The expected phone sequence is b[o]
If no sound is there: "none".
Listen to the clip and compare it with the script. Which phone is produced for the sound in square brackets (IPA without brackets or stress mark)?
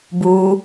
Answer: u